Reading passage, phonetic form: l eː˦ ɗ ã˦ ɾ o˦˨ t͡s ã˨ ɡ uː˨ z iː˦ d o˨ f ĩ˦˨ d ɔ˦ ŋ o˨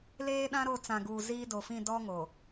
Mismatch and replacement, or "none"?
none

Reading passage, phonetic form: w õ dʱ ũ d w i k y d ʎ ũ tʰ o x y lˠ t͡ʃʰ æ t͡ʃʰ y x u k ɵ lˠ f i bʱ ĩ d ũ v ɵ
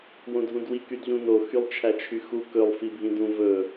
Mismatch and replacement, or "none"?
tʰ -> n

